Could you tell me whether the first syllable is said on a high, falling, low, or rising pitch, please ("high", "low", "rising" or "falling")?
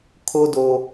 high